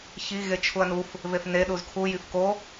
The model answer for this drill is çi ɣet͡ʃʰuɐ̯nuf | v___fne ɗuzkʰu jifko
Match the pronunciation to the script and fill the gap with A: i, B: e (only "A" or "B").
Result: B